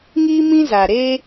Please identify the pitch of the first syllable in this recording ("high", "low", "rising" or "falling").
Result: high